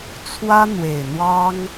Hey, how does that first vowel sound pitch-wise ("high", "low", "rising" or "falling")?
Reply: high